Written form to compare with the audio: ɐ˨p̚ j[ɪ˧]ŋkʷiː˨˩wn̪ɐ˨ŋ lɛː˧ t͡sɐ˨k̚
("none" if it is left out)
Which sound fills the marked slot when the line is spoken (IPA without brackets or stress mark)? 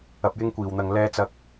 ɪ˧